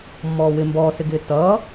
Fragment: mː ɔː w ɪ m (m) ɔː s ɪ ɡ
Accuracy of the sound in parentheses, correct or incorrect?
incorrect